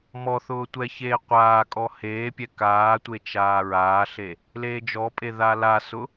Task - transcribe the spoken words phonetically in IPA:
m ɔ θ ʊː tʷ ɛ ç eː qʷ aː kʼ ɔ h eː pʲ ɛ k aː tʷ e t͡ʃ aː ɹ aː ɬ e | l eː d͡ʒ ɔ pʼ e ð a l a s ʊ

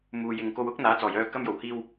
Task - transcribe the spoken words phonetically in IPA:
m uː˨ j ɪ˨ ŋ k o˧ w ʊ˥ k̚ n̪ aː˨˥ t͡s ɔː˨˩ j œː˧ k ɐ˧ m j o˨˩ w h iː˧ w

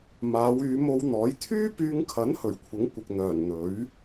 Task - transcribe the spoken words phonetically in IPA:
m aː˨˧ w yː˨˧ m o˧ w n̪ ɔː˨˥ j t̪ʰ yː˥ p yː˧ ŋ kʰ ɐ˨˥ n h ɵ˨˩ ɥ kʷʰ ɪ˨˥ ŋ kʷ ɪ˨ k̚ n̪ œː˨˩ n n̪ ɵ˨˥ ɥ

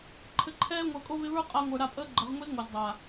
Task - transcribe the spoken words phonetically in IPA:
ǃʰ ɘ˨ ǃʰ ɛː˧ ŋʷ əː˨ kʼ o˧ β ɪ˧ β ə˞˦ qʼ a˧ ŋʷ ə˞˨ ɾ a˦˨ pʼ əː˦ ɡ͡ǃ ə˨˦ ʁ ŋʷ e˦ z ŋʷ œ˨ z dˤ a˨

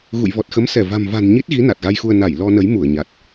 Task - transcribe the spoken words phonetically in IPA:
ɣ ṵ˧˨ j v ɔ˨˩ t̚ x ə˨˦ m s ɛ˧˩ v a̤˨˩ m v a̤˨˩ n ɲ i˦˥ t̚ ɣ i˨˦ n a˨˩ t̚ ɣ a˧ j x u˧ ə̯ n a˧˩ j l ɔ˧ n ə˨˦ j m u˧˩ ə̯ ɲ a˨˩ t̚

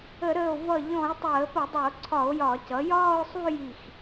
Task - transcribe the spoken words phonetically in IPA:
ə˧˩˧ ɾ əː˧˩ o̯ v ʌ˧˩ ʎ ɔ̃˧˩˧ e̯ tˤ əː˧˩˧ p ə˧˩˧ dˤ ʌ˧˩˧ o̯ ǀʰ ɒ˧˩˧ o̯ j ɒ˧˩˧ c ʌ˩˥ j ɒː˥˧ o̯ sˤ u˥˧ j i˧˩ x

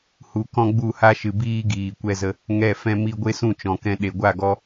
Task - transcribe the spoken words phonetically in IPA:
h u˧ k ɔ̃˦ ɡ͡b u˦˨ h a˦ ʃ ɨ˨ b iː˦ ɡ iː˨ kʷ ɛ˧ z ə˧ | ŋ ɛ˦˨ f ɛ̃˦ m i˦ ɡʷ e˦ s ũ˦˨ t͡ʃ ɔ̃˨ k ɛ̃˧ ɗ e˨ ɡʷ a˦˨ ɡ ɔ˦

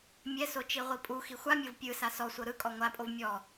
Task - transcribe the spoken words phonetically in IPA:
mʲ ɛ s o t͡ʃ i ʁʷ i pʼ u x i xʷ a mʲ ɤ v pʲ ɯ s a s ɔ sʷ ɤ ɾ ɯ kʼ ɔ ŋʷ a pʼ o v mʲ ɔ

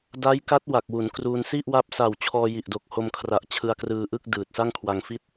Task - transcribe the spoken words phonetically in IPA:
d a˦˥ j k a˦˥ t̚ w a˨˩ k̚ w u˩˦ n k r u˧ n s i˥˩ ʔ w a˦˥ p̚ s a˨˩ w t͡ɕʰ ɔː˧ j i˨˩ ʔ d o˨˩ k̚ h o˧ m kʰ r a˨˩ ʔ t͡ɕʰ ɯ˧ a̯ k r ɯː˧ ʔ ɯ˥˩ k̚ d ɯː˨˩ t̚ s a˥˩ ŋ kʰ w a˧ ŋ f i˦˥ t̚

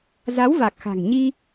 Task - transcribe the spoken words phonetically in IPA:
z a˨˦ w v a˨˩ k̚ x a̤˨˩ ŋ ɲ i˧

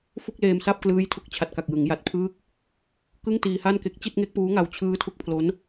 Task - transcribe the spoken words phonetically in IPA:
f u˥˩ k̚ l eː˧ m s a˥˩ p̚ k l ɯː˦˥ j tʰ u˦˥ k̚ t͡ɕʰ a˨˩ t̚ k a˨˩ k̚ j ɯ˩˦ ŋ j a˨˩ t̚ pʰ ɯː˥˩ k̚ | k ɯ˥˩ ŋ t iː˧ h a˥˩ n k e˦˥ k̚ t͡ɕ i˥˩ t̚ ŋ e˦˥ k̚ p uː˦˥ ŋ a˧ w t͡ɕʰ ɯː˦˥ tʰ u˦˥ k̚ pʰ l o˦˥ n

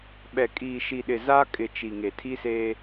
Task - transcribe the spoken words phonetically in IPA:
ɓ ɛ˨ kʼ iː˨ ʃ i˨ ɗ ɪ˨ z a˦ kʼ ɪ˨ t͡ʃ i˨ ŋ e˨ tʰ i˦ s eː˦

